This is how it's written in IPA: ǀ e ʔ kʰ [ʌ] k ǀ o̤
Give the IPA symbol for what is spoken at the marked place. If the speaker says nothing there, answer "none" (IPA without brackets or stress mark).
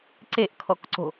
ɔ